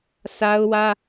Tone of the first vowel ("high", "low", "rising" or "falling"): high